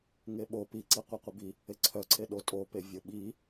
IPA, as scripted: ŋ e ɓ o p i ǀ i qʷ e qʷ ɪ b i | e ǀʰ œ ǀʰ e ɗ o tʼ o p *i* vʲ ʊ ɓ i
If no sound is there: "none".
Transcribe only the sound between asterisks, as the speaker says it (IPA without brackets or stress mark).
e